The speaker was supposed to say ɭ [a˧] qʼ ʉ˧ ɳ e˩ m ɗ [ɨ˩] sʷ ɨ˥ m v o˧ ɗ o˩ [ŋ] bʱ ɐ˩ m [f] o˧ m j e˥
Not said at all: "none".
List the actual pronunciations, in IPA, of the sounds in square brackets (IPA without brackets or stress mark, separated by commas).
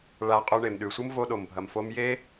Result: a˧, ʉ˩, m, f